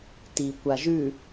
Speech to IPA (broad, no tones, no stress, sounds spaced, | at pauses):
t i kʷ a ʒ ʉ